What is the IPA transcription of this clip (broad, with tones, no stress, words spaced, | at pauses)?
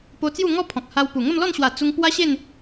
po˧t͡sju˥˧ŋɔ˥˧ pʰɔ̃˨k̚ha˧wpu˨˩ ŋə˥˧mlɔ˥˧nɕwa˨˩ t͡su˧ŋ pwa˦ɕe˥˧n